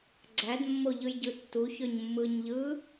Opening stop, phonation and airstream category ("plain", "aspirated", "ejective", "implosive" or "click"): click